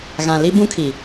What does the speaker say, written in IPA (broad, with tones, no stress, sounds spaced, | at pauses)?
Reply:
ɣ ã˨ l i˦ b ũ˦ kʰ i˨